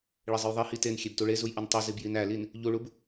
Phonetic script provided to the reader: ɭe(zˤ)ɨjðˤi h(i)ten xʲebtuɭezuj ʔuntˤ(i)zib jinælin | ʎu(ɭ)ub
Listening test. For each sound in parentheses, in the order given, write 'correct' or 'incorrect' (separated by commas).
correct, correct, correct, correct